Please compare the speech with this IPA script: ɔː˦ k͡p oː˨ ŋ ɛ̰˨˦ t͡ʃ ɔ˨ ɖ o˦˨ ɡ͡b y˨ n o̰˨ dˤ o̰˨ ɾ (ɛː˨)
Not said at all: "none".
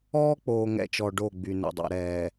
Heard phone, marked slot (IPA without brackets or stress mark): ɛː˨